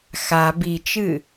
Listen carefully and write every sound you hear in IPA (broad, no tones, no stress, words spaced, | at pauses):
xa bit͡ʃɨ